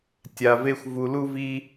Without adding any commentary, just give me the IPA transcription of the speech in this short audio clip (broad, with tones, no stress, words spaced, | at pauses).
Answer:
tʲa˧ve˦xʷ vu˧lu˦vi˦